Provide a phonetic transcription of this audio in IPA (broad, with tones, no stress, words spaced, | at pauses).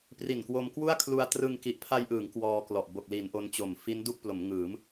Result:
pri˨˩nkwo˧mkwu˥˩a̯ kʰlu˧a̯trɯ˧ŋ ki˨˩ʔpʰa˧jʔɯː˩˦ŋ kwɔː˧klɔ˨˩ʔ bo˨˩k̚li˩˦n ʔo˦˥nt͡ɕo˨˩m fi˦˥n du˥˩k̚plo˩˦mŋɯː˩˦m